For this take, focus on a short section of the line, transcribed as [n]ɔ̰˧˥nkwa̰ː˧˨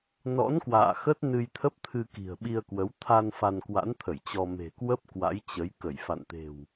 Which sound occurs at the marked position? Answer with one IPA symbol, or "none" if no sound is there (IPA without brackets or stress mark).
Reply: n